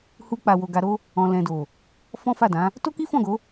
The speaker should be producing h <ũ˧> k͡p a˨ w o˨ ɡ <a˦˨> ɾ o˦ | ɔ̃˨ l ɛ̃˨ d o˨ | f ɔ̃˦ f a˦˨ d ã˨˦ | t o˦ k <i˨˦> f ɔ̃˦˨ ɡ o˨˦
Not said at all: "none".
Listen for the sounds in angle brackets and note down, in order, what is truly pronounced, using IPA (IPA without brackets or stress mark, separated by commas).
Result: u˧, a˧, i˦